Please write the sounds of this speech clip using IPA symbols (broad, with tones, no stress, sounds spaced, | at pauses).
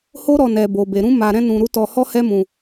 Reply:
h o˦ ɾ ɔ˧ n ɛ˨ b o˨ b e˨ ɾ ũ˧ m a˧ ɾ ɛ̃˦ n ũ˧ ɾ u˦ t ɔ˧ h ɔ˦ h ɛ˦ m ũ˧